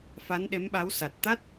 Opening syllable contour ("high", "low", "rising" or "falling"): rising